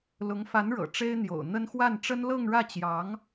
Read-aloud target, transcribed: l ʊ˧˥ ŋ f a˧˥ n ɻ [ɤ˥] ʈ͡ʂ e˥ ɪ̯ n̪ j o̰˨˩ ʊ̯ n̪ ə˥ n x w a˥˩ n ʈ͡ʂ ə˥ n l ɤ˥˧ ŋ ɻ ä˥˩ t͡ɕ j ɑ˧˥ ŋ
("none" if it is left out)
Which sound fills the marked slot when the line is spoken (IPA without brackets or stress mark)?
ɤ̰˨˩